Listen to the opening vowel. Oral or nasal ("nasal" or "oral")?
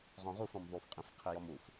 nasal